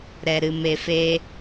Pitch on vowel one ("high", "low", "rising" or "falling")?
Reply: low